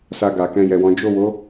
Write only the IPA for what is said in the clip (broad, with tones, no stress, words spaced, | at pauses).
sa˧ɡa˨kɛ̃˧ jɛ˨wɔ̃˨˦ d͡ʒo˦˨wo˨˦